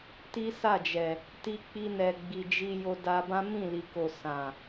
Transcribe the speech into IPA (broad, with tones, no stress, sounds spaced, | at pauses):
t i˦ s a˦˨ d͡ʒ ɛ˨ | t i˧ k͡p i˧ n ɛ˨ ɡ͡b i˨ d͡ʒ i˧ j o˧ d a˧ b ã˦ m ĩ˦˨ l i˨ k o˨ s ã˨